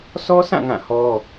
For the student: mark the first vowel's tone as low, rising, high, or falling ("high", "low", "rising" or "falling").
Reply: high